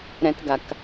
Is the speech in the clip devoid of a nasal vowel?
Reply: no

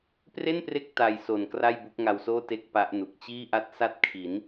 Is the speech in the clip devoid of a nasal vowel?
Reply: yes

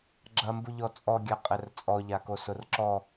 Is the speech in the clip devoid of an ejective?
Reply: no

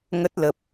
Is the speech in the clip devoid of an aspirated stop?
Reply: yes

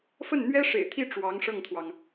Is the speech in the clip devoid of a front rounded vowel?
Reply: yes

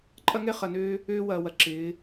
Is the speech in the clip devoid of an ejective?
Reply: no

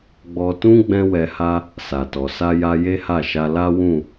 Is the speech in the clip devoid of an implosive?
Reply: yes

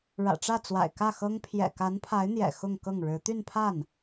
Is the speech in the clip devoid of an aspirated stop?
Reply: no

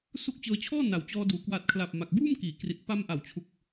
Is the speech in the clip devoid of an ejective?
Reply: yes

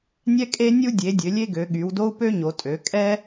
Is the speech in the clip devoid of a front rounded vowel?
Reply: no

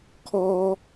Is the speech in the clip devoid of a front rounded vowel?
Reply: yes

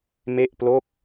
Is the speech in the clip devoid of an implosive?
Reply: yes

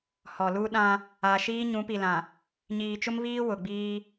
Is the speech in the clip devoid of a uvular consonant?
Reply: yes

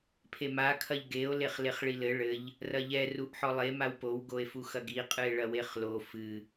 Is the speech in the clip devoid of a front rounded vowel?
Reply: yes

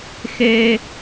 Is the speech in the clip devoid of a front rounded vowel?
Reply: yes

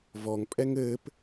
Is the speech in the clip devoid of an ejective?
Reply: no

